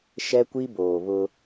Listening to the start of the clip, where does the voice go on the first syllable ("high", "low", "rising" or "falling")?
high